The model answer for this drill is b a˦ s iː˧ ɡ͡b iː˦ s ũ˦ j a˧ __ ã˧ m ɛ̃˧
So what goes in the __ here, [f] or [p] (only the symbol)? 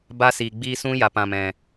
p